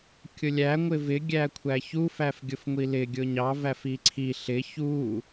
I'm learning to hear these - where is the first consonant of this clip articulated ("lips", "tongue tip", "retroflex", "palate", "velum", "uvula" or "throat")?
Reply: velum